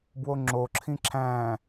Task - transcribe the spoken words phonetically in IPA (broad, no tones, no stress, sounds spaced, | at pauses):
b w o ŋ͡ǁ o ǁʰ ĩ ǁʰ æ̃